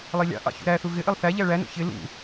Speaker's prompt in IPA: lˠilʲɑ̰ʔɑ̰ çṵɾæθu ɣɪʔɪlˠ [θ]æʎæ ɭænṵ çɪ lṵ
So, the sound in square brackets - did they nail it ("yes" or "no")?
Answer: yes